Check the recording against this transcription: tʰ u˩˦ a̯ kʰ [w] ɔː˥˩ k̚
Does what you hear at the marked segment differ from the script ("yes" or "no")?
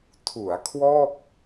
no